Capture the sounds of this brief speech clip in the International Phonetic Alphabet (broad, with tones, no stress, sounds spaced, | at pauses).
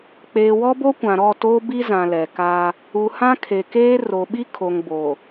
k͡p eː˨ w ɔ˦ b o˦ kʷ ã˨ ɾ ɔ˦˨ t oː˦ b i˦ z ã˨ l ɛ˨ k aː˦ | u˨ h ã˦ kʰ e˨ k eː˦ r o˨ ɓ i˦ kʰ o˨ ŋ b oː˨